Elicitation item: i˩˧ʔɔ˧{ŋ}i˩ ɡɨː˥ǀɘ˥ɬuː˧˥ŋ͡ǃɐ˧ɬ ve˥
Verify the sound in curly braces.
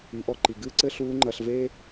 incorrect: ǃ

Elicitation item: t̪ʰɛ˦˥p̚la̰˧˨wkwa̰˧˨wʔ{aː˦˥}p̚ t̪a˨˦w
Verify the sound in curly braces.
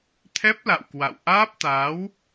correct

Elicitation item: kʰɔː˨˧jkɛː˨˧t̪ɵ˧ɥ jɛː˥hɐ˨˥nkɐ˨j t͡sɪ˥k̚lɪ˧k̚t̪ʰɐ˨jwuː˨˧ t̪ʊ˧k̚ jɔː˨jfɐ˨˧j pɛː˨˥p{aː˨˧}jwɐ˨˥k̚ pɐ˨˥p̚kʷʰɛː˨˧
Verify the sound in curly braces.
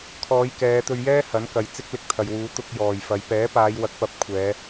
correct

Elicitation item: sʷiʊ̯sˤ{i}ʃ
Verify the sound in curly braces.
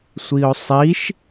correct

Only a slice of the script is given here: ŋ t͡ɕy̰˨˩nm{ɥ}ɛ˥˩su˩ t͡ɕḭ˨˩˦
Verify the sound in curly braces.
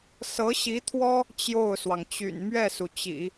correct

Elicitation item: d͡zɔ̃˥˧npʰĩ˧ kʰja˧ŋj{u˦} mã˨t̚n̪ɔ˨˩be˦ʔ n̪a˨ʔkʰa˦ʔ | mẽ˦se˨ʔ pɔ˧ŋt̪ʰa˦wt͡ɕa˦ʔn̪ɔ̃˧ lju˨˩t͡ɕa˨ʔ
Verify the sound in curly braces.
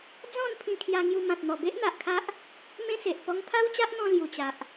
incorrect: u˧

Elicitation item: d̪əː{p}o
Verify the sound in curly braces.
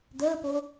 correct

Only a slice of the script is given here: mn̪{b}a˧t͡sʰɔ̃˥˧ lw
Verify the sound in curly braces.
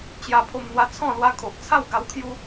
incorrect: w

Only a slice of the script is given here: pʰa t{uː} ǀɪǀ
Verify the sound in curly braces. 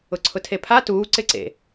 correct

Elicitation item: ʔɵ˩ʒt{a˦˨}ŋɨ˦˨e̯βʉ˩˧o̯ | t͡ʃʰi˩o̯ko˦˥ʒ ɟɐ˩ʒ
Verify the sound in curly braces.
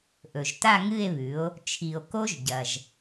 correct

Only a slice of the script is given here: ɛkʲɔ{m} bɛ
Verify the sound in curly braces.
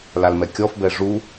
incorrect: f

